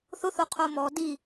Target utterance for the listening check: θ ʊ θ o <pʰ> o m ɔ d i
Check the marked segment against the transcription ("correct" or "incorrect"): incorrect